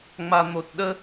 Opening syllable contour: low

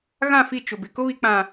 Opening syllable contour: falling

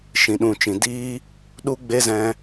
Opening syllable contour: low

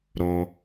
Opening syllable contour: low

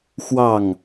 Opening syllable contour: falling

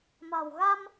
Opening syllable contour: low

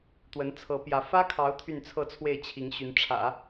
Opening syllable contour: rising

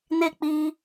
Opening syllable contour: falling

